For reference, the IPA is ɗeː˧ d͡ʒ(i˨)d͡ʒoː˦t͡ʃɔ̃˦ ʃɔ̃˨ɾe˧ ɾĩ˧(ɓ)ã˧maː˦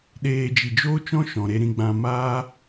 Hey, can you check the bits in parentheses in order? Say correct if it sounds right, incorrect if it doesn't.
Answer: correct, incorrect: ɡ͡b

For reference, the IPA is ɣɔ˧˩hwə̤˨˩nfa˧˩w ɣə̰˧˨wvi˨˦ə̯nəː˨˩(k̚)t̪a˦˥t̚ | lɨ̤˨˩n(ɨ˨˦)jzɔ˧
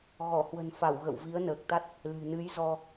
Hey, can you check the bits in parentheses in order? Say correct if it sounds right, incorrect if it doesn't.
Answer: correct, correct

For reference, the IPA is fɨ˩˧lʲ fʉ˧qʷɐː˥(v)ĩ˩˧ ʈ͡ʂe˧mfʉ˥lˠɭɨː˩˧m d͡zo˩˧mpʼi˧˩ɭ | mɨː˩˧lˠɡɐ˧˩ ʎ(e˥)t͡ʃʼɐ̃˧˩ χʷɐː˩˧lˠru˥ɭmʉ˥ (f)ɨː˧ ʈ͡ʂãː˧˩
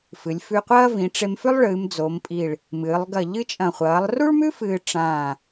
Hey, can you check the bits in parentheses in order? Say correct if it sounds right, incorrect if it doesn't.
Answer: correct, incorrect: ɨ˥, correct

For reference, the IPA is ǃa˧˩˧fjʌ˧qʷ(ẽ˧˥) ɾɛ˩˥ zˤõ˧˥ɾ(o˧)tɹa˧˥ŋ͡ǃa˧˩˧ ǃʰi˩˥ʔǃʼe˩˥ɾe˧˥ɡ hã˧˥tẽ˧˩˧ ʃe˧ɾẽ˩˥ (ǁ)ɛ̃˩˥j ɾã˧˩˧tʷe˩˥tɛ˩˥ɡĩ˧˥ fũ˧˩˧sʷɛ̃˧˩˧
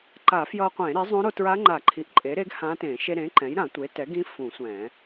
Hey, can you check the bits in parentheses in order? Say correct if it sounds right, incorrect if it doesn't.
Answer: incorrect: ẽ˧˩˧, correct, incorrect: ǃ

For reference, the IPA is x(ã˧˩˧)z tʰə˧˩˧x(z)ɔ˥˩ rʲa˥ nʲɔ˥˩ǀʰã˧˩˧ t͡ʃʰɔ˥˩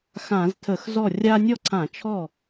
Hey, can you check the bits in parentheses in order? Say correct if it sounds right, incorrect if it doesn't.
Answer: correct, correct

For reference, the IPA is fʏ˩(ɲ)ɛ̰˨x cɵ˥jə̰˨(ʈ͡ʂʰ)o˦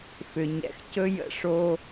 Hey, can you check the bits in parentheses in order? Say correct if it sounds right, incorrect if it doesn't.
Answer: correct, incorrect: ʂ

